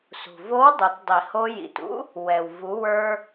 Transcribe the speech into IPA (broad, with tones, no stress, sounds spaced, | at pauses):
s ṳ˩ v o˧˥ w dˤ o˩˧ t dˤ i˩ h o˧ j ḭ˩ t ṵ˥ | w ɛ˩ w v u˩˧ w ə˞˧